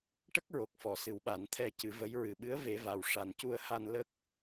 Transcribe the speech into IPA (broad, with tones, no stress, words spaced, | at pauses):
ʈə˦˥k̚ɹo˨˩k̚fɔ˨˩˨ sɨ˨˩wɓa˨˩˦n t̪ʰɛ˧cɨ˨˩˦və˧˥j ɹɨ˨˩ɓɨ˧˥ə̯ ve˧˥va˧wʂa˧n cu˧ə̯ha˧n lə˦˥k̚